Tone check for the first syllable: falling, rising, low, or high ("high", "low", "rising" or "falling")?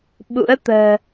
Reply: rising